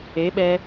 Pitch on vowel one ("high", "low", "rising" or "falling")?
rising